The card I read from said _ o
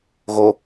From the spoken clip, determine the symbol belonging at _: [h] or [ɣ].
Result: ɣ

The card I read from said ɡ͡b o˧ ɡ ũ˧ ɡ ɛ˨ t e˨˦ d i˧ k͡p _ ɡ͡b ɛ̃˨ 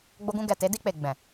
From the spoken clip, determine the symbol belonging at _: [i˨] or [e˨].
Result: e˨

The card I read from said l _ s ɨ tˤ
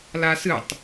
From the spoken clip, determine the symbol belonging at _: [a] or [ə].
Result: a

